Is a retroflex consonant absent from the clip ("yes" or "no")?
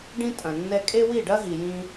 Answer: no